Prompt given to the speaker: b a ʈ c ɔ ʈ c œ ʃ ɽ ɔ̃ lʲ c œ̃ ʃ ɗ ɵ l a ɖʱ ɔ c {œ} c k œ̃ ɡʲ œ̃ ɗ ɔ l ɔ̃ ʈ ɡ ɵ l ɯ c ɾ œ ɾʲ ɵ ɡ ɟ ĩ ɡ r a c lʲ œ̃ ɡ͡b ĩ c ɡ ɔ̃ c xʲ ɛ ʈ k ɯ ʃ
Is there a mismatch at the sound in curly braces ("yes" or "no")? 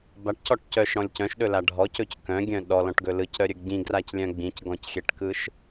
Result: yes